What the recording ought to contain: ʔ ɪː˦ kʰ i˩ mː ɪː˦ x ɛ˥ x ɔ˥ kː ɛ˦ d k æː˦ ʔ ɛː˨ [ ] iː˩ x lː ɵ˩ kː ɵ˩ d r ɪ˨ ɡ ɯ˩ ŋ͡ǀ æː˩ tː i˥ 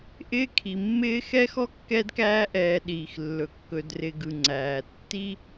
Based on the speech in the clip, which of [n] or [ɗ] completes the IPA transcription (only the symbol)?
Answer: ɗ